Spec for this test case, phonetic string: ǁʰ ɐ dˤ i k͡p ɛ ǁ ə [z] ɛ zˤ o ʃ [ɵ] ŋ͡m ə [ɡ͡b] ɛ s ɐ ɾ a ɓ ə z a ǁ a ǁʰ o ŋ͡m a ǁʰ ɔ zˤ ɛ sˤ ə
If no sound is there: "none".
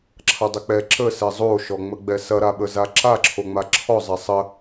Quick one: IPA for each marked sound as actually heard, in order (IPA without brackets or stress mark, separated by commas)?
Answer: s, ɔ, ɡ͡b